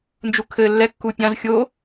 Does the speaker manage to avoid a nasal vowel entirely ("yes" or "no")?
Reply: no